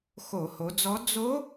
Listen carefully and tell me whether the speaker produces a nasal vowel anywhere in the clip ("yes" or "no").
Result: no